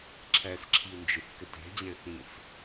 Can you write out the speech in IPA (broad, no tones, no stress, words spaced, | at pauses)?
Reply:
ǁʰæsǁʰiu̯nd͡ʒeθ kətæ̤d͡ʑæ̃ θĩs